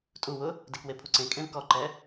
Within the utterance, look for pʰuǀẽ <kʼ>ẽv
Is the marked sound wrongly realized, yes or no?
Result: no